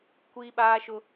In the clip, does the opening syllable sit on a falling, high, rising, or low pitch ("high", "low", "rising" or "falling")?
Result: high